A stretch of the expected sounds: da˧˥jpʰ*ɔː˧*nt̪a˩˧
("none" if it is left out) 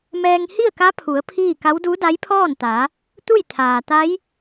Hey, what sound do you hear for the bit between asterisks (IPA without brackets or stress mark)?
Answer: ɔː˥˨